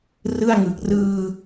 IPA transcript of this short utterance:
r ɯ˥˩ a̯ ŋ ɯ˨˩ k̚ r ɯː˧

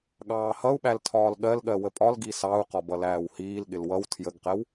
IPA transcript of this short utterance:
ɠ ɑː h ʌ u̯ ɓ æ l tʰ ɒː l ɠ ɜ l ɠ ɜ w ə pʼ ɒ l ɡ i s ɑ u̯ q ɒ b ʌ l æː w h iː l ɠ ɪ l w ʌ w tʰ j ə ɡ q ɛ w

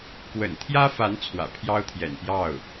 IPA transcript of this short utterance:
k w ə̰˨˩ n t̪ʰ j ä˥ f a˧˥ n t͡sʰ w ä̰˨˩ pʰ j ɑ˥ ʊ̯ t̪ʰ j ɛ̰˨˩ n p j ɑ˥˩ ʊ̯

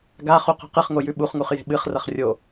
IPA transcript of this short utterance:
ɡ a χ u q o̤ q ɨ χ ŋ o j ʉ ɓ u χ ŋ u χ j e̤ ɓ ɨ χ r ɐ χ rʲ o

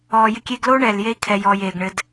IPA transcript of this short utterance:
ɔː˨ j ɪ˧ kʲ eː˧ ɡ l oː˦ ɳ ɛː˨ l j e˦ i̯ kʰ ɛ˨ j ɔː˨ j eː˨ ɡ ɳ ɘ˧ d

